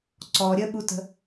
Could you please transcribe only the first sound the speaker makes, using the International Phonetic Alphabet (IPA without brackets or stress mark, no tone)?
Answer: ǀ